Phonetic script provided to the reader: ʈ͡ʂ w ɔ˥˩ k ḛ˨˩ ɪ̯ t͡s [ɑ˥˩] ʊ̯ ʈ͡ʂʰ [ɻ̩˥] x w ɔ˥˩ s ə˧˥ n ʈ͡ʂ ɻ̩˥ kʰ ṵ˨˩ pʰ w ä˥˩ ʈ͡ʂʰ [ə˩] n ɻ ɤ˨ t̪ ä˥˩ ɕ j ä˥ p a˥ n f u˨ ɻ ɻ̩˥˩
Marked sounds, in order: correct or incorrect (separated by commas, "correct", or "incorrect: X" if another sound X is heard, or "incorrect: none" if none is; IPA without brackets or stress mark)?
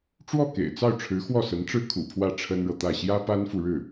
correct, incorrect: ɻ̩˧˥, incorrect: ə˥